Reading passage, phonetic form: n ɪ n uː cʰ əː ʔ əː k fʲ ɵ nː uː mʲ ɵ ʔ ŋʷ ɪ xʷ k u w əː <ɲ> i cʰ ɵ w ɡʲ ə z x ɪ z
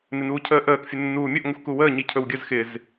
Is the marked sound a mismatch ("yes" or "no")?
no